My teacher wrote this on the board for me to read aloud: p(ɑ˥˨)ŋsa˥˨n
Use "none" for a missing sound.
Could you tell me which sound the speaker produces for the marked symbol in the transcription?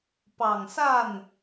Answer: ɑ˨˩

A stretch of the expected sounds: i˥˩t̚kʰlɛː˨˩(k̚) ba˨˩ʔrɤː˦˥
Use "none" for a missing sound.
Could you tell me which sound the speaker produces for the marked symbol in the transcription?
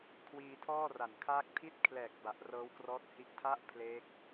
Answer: k̚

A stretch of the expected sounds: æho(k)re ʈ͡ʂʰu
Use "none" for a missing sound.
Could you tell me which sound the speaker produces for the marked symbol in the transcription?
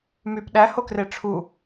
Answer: k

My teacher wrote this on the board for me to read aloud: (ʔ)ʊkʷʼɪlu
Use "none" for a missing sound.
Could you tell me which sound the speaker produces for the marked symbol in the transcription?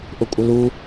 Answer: ʔ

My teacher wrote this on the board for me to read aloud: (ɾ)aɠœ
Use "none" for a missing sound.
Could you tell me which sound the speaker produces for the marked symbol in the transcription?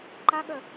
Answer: ǃ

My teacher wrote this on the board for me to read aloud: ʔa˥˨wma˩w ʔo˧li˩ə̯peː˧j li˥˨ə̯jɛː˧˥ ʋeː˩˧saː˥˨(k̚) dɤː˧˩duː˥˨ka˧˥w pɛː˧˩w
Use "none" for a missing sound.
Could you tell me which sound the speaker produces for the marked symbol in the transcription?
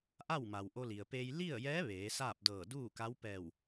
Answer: p̚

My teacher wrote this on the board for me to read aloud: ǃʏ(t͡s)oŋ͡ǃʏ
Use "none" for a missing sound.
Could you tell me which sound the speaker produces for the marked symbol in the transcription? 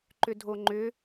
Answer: dʱ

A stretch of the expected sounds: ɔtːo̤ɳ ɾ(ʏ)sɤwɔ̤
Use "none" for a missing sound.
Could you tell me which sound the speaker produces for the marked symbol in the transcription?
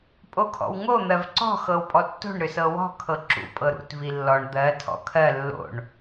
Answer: ʏ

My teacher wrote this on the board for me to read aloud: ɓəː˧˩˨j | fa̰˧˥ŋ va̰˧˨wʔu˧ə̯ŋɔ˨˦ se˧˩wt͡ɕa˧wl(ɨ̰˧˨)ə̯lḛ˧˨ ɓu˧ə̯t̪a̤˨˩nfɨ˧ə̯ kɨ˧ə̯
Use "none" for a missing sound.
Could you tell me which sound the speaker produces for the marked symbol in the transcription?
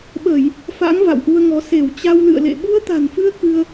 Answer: ɨ̰˧˨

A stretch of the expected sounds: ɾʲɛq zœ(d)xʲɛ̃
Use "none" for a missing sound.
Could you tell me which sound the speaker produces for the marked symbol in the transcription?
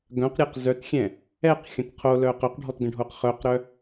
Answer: t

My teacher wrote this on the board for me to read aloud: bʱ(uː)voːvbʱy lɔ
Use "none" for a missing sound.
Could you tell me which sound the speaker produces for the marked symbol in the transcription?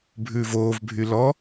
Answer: ʉː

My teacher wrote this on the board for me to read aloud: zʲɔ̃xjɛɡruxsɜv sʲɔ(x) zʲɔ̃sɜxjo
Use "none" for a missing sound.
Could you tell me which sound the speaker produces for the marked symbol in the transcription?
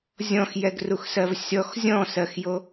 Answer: x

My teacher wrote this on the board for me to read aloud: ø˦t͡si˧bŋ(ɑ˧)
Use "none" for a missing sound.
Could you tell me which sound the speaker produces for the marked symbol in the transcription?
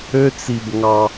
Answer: ɑ˧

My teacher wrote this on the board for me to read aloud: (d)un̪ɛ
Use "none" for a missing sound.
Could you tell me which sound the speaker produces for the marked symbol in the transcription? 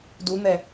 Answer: d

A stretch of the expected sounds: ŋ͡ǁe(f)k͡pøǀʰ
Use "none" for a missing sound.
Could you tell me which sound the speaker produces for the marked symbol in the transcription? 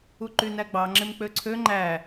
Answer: m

